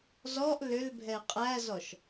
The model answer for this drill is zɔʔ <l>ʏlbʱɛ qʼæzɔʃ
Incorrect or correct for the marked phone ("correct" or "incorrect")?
correct